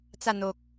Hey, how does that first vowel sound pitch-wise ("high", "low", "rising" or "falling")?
falling